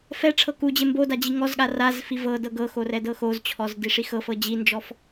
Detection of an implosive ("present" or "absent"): present